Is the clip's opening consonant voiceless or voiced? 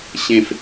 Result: voiceless